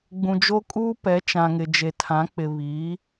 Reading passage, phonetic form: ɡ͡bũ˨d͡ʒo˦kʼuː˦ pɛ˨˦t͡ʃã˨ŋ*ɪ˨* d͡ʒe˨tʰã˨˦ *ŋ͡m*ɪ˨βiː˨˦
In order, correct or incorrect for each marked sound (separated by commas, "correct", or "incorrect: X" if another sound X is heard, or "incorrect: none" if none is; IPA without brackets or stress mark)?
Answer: correct, incorrect: k͡p